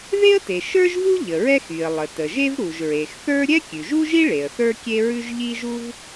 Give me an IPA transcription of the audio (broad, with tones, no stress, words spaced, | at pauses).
ðe˥ə̯te˩ ʃə˞˥ʒvu˥ ʎə˩ɹɛ˥xy˩ə̯ lˠə˩tə˩ʒe˥v ɾu˩ʒɹe˩xθə˞˥ ɾʲɛ˥kʲʉ˩ʒu˥ʒi˥ ɭe˩ə̯θə˞˥kʲe˥ɹʉ˥ʒ ʎi˥ʒu˥v